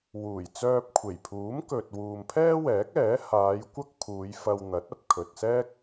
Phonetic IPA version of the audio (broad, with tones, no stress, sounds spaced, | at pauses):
w uː˨˩ j t͡s œː˧ p̚ kʷʰ e˨˩ j pʰ uː˨˥ m k ɵ˨ t̚ w uː˨ m pʰ ɛː˥ w ɛː˨˥ k̚ ɛː˨˥ h aː˨˧ j kʷ ɐ˥ k̚ pʰ uː˨˧ j f ɐ˧ w n̪ ɐ˨˥ t̚ ɐ˨ p̚ kʰ ɵ˨ t̚ s ɛː˥ k̚